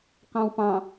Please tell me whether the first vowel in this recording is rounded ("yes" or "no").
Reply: no